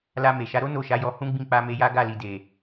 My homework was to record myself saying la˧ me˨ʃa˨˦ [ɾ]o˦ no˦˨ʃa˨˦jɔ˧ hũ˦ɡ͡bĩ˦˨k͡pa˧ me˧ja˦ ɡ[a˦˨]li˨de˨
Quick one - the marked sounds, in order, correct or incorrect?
correct, correct

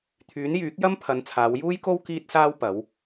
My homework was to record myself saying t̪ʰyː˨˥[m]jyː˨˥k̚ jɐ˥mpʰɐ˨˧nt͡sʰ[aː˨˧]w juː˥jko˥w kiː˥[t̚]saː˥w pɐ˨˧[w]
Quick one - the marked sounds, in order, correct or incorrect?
incorrect: n, correct, correct, correct

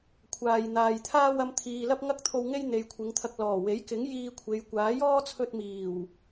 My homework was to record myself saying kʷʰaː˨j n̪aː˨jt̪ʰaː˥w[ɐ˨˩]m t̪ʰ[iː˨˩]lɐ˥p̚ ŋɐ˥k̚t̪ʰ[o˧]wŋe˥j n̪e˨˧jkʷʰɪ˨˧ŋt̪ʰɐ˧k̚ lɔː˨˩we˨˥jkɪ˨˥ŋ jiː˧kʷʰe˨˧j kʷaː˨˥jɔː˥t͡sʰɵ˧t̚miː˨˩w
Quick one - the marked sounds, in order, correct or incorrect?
incorrect: ɐ˧, incorrect: iː˨, correct

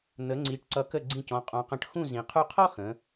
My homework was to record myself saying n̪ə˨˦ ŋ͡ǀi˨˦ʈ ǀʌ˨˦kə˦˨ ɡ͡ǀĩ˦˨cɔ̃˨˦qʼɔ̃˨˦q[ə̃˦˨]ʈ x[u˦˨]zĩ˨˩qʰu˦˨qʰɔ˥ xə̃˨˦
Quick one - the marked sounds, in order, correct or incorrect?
correct, incorrect: ũ˦˨

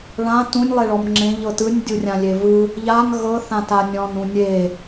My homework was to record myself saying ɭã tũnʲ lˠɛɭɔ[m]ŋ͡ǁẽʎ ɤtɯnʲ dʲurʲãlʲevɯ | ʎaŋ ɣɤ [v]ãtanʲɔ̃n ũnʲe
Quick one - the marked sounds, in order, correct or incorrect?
correct, incorrect: θ

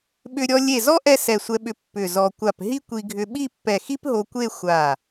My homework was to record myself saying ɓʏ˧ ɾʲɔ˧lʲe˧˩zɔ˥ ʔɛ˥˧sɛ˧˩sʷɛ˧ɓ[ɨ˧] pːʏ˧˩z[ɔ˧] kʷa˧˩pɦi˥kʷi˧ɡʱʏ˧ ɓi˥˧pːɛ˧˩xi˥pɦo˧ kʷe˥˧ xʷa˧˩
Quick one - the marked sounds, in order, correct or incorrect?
incorrect: ʏ˧, correct

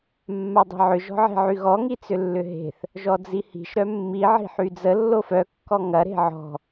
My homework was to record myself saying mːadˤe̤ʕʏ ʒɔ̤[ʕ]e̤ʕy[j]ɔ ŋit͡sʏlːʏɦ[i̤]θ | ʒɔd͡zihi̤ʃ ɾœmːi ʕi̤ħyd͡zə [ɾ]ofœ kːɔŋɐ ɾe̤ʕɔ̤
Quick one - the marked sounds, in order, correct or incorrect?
correct, incorrect: ɣ, incorrect: e̤, incorrect: lː

